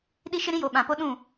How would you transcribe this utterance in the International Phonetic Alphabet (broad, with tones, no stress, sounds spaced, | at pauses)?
ɗ i˦ ʃ ɪ˦ ɾ ĩ˦ j o˨ ɓ ã˨ p o˦ ɗ ũ˦˨